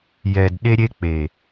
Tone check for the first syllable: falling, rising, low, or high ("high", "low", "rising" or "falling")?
low